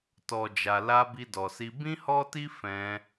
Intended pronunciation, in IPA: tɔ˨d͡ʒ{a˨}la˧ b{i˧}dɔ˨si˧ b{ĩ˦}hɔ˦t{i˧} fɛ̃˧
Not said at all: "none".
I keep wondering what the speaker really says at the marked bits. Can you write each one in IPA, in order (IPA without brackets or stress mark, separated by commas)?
a˨, i˧, ĩ˦, i˦